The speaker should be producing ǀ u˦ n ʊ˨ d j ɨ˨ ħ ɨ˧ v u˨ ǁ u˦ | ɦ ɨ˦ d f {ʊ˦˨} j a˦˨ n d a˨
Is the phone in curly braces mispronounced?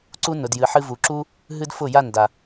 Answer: no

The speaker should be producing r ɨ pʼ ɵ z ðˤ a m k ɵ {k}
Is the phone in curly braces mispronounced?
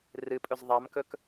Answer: no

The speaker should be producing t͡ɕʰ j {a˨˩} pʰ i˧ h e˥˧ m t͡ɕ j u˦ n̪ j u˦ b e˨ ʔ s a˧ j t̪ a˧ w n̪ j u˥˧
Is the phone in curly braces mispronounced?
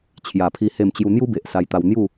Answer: no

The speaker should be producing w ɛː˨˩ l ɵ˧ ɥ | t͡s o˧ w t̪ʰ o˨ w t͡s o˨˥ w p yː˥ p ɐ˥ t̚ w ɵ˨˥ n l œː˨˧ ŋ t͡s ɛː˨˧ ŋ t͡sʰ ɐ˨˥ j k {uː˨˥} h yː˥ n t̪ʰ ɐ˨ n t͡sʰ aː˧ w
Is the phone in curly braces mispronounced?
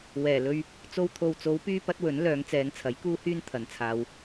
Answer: yes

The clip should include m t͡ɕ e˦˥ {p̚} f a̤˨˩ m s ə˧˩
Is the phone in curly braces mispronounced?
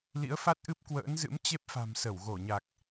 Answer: no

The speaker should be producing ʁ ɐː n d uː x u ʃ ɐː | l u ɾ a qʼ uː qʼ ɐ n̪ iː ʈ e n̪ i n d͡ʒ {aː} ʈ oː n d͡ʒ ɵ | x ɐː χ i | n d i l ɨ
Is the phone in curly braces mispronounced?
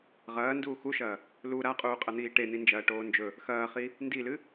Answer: yes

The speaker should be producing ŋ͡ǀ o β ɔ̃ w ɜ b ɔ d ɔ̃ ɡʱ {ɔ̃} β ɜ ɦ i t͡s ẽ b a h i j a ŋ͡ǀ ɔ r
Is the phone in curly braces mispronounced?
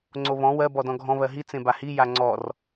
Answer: no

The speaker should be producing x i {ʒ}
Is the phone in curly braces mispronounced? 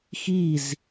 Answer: yes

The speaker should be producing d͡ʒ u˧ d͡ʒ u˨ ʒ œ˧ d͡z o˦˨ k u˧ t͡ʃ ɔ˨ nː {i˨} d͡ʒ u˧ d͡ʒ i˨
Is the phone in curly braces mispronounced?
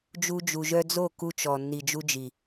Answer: no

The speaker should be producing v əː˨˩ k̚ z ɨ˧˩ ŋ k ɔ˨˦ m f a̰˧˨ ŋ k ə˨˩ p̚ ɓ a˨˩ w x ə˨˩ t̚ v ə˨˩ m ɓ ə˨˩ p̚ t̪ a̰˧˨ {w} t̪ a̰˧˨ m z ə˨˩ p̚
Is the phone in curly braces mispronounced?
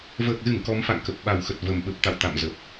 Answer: no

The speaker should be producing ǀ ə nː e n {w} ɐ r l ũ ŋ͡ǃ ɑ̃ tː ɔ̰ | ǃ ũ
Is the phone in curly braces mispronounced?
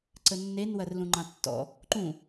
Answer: no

